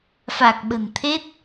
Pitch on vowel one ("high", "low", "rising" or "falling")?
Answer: low